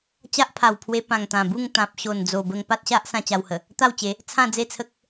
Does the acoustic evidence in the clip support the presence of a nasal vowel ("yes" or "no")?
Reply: yes